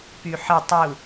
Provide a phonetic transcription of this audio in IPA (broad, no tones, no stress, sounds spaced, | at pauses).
p y ħ ə tˤ u